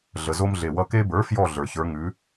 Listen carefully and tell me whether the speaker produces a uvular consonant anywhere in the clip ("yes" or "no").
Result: no